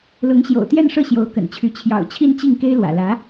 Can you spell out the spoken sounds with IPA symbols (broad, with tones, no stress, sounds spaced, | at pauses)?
l ʊ˧˥ ŋ ɕ j o̰˨˩ ʊ̯ t̪ j ɛ˥˧ n ʂ ɤ˥˩ ɕ j o˧˥ ʊ̯ k ə̰˨˩ n t͡ɕʰ y˧˥ t͡ɕʰ j ɑ̰˨˩ ʊ̯ t͡ɕʰ i˥˧ n t͡ɕ i˥˩ ŋ k e˥ ɪ̯ l w ä̰˨˩ l ä˧˥